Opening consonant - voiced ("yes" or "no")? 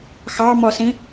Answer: no